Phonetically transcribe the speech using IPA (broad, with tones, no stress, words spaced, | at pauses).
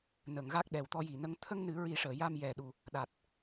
nə˨˩˨ŋ ɣa˦˥k̚ɗɛ˨˩w t̪ɔ˧ji˨˩˨nə˧˥ŋ t̪ʰə˧ŋnɨ˨˩˦ɹi˨˩˦ʂəː˨˩˨ ja˧mjɛ˨˩ ɗu˨˩ | ɗa˨˩t̚